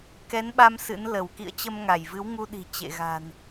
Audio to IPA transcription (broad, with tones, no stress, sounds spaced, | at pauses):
k ɛ˨˦ n ɓ a˧ m s ɨ̰˧˥ n l ə˧˩ w k ḭ˧˨ ə̯ t͡ɕ ə˧ m ŋ a˧˩ j v ɨ˨˦ w ŋ u˧ ɗ i̤˨˩ t͡ɕ ḛ˧˨ ɣ a̤˨˩ n